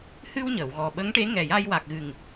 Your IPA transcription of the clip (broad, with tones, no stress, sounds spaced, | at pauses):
h ɨ˧ w ɲ ə˨˩˨ w ɣ ɔ˨˩ ɓ ə˧˥ ŋ ʈ e˧˥ ŋ ɛ˨˩ j a˧ j w a˨˩ k̚ ɣ ɨ˨˩ ŋ